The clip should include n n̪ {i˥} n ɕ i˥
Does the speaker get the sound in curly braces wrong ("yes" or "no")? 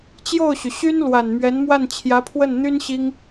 yes